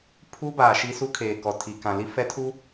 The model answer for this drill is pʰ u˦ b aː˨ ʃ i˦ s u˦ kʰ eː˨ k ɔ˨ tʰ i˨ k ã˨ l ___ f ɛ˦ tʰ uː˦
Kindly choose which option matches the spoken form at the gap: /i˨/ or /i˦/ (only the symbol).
i˦